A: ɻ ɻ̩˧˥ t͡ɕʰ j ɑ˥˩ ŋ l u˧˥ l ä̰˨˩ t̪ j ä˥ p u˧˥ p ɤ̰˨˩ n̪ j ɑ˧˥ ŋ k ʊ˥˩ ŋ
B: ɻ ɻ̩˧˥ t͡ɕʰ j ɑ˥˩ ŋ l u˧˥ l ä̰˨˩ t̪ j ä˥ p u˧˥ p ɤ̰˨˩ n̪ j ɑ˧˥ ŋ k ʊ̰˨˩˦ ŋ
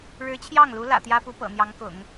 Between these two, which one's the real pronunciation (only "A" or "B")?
B